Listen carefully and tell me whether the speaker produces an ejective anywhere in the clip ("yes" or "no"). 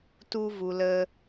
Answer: no